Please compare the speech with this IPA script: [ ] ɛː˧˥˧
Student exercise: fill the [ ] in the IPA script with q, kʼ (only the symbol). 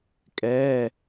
kʼ